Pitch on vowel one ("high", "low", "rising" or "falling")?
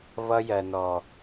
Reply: high